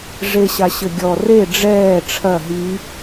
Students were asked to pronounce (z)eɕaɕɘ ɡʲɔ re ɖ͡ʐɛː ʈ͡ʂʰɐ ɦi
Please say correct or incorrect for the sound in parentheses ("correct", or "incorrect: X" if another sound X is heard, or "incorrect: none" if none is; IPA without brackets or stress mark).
incorrect: ʐ